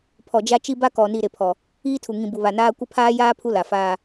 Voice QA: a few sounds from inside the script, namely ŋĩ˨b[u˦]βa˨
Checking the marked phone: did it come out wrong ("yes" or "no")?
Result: yes